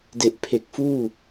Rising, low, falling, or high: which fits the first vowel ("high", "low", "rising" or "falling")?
low